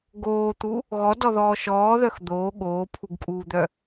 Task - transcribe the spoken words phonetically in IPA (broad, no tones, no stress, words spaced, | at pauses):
ɡoːt̪u | ɣɔdɔðɔː ʃɔːðœx d̪oː ɠoːpʰuɡkʼuːd̪œ